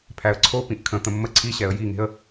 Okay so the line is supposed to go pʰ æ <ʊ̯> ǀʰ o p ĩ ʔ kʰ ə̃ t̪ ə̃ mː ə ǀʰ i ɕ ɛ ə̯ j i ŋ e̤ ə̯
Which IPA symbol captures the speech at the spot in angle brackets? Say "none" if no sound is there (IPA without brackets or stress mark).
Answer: ə̯